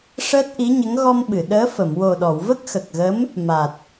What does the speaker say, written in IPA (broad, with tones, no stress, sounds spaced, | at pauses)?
ʂ əː˦˥ t̚ ʔ i˧˥ ɲ ə˧˥ ŋ ɣ ɔ˧ m ɓ ɨ˨˩˨ ɗ əː˧˥ f ə˨˩˨ m w o˨˩ ɗ ɔ˨˩˨ w v ə˦˥ k̚ x ə˨˩ k̚ ɣ ə˧˥ m | m a˨˩ t̚